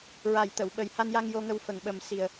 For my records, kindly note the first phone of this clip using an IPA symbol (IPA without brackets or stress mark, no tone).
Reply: ɹ